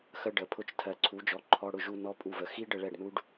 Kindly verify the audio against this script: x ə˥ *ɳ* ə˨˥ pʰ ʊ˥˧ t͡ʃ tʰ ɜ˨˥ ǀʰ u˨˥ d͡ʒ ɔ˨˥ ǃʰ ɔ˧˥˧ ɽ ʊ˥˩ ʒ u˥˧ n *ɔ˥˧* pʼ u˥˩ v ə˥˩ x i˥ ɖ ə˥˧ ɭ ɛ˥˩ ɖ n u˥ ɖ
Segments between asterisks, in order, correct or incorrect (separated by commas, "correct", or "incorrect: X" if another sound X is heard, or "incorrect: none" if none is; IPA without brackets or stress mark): incorrect: ɖ, incorrect: ɔ˥